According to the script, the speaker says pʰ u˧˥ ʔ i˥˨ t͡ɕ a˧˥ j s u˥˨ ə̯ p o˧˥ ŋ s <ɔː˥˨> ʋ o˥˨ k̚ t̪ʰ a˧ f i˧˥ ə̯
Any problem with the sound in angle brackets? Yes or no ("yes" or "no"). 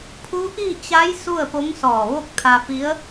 yes